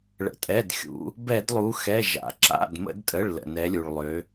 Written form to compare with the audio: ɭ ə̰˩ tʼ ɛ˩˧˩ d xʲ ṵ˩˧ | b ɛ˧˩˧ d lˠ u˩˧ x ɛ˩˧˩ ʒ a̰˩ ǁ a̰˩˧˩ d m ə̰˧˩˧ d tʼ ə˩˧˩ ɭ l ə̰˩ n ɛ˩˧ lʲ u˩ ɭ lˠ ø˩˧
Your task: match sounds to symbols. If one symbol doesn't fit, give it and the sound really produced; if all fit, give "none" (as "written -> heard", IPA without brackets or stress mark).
none